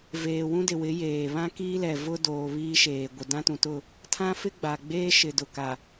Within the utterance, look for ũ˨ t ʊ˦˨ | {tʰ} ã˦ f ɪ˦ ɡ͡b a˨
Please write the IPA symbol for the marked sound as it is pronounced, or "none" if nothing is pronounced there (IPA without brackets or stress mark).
tʰ